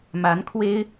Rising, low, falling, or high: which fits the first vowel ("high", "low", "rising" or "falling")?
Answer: rising